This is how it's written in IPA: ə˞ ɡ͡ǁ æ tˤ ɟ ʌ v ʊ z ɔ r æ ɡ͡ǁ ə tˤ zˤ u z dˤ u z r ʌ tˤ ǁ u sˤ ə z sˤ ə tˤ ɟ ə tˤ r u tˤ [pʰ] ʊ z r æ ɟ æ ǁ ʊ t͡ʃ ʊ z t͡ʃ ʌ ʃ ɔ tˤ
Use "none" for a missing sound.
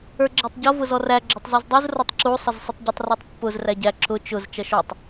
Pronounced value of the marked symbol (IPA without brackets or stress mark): pː